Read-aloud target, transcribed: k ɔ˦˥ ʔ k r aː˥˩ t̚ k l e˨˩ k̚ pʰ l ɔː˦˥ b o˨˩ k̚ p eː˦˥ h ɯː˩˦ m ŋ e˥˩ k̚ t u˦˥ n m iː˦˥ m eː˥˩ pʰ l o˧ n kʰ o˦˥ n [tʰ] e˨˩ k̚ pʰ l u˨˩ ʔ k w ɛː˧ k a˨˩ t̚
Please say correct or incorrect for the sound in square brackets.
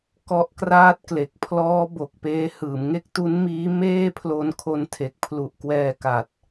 correct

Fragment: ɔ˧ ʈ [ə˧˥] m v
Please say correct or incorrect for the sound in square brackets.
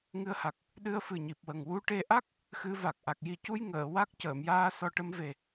correct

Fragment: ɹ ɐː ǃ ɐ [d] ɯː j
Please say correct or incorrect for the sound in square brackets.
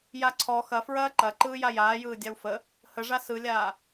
incorrect: ǃ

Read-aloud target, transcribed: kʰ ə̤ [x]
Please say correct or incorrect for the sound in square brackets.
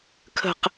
incorrect: q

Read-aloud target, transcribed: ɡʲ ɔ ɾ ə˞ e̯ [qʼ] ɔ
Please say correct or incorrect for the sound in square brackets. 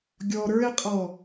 correct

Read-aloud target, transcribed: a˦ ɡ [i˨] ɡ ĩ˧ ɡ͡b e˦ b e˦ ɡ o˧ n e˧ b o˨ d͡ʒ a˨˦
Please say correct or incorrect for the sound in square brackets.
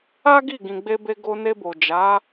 incorrect: i˦˨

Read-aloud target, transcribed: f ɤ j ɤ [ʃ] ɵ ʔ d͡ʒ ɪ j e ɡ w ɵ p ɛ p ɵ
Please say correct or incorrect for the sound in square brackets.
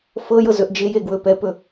incorrect: z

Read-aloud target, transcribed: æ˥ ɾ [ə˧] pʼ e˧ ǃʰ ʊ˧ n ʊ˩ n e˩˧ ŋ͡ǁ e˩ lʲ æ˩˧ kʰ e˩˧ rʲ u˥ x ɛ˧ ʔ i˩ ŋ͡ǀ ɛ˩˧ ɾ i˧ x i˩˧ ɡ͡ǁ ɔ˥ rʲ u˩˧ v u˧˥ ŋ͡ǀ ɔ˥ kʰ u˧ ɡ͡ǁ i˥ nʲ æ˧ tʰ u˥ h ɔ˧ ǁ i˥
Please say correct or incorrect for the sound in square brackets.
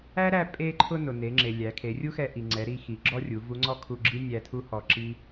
incorrect: æ˧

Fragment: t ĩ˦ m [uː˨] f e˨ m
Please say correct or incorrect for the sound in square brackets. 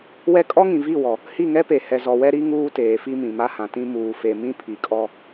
correct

